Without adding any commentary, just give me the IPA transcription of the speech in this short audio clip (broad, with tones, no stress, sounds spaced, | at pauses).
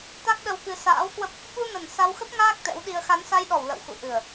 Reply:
t̪ a˦˥ k̚ ɗ ə˧ w k ɨ˧ s a̰ː˧˥ w k w ə˦˥ p̚ | ɓ u˧ n ə˨˩ n s a˧ w x ə˦˥ p̚ ŋ aː˦˥ k̚ t̪ ɛ̰˧˥ w ɗ i˧ ə̯ x a˨˦ n s a˧ j ɗ ɔ˧˩ w l ə̰˧˨ w x ṵ˧˨ ʔ ɨ˨˩ ə̯